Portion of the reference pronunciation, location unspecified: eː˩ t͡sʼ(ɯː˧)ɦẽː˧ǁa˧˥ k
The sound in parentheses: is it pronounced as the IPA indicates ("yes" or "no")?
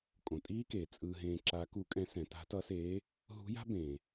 yes